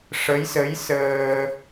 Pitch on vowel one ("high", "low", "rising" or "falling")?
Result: rising